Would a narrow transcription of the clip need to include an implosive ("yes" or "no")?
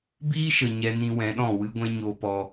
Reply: yes